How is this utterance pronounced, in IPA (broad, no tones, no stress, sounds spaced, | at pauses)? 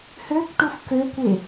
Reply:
h ø k ʈ u f k ø kʷ e